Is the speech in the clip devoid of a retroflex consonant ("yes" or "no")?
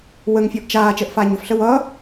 yes